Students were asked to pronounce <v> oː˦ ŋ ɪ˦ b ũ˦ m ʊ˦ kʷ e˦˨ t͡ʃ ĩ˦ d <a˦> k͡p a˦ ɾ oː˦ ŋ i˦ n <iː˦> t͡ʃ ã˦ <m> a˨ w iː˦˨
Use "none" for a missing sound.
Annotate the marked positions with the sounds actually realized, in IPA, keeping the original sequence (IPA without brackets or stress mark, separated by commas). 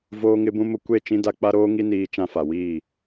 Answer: v, a˦, iː˦, f